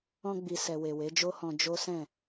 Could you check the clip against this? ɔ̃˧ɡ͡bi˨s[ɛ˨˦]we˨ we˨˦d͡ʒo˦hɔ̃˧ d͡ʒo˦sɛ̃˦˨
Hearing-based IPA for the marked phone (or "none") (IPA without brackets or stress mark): ɛ˨